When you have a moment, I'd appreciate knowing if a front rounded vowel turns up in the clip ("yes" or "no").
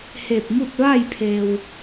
no